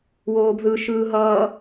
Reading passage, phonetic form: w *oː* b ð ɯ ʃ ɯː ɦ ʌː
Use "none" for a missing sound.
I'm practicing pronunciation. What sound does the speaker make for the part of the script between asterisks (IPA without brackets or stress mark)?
oː